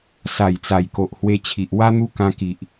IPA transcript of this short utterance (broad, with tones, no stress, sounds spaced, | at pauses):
s a˨˩ j t͡s a˨˩ j k o˨ ʔ h w e˧ t͡ɕʰ i˨ ʔ w a˧ n̪ u˧ k ã˧ k i˨ ʔ